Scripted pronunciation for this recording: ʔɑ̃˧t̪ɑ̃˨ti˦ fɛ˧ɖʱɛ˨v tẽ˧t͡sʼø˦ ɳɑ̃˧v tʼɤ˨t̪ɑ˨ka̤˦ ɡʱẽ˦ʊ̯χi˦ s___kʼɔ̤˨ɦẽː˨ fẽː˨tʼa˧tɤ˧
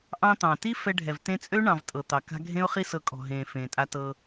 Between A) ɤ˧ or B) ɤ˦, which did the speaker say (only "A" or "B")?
A